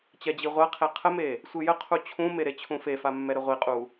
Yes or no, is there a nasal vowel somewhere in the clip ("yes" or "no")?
yes